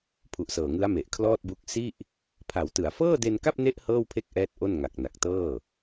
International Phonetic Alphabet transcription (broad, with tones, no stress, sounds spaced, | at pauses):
pʰ u˨˩ ʔ s ɤː˨˩ ŋ ɯ˦˥ a̯ m e˨˩ ʔ kʰ l ɔː˥˩ t̚ b u˦˥ k̚ s i˥˩ ʔ | pʰ a˩˦ w t ɯ˩˦ a̯ f ɤː˥˩ d e˧ n k a˥˩ p̚ n e˦˥ ʔ h ɤː˥˩ w pʰ e˥˩ k̚ ʔ ɛː˦˥ t̚ ʔ o˥˩ n ŋ a˨˩ k̚ n a˨˩ k̚ t ɤː˥˩